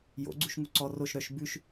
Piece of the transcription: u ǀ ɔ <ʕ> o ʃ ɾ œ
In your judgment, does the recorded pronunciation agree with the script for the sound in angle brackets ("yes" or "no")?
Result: no